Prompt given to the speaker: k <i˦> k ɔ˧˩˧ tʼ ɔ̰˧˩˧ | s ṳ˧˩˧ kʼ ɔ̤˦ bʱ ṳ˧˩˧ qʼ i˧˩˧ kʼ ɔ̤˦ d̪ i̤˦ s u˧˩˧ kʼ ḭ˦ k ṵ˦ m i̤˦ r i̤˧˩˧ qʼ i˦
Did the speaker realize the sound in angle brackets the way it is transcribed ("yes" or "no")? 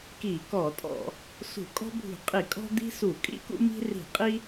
no